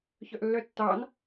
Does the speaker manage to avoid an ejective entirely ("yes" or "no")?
yes